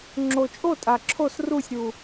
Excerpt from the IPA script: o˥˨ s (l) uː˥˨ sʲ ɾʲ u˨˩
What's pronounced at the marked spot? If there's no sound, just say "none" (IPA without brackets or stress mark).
r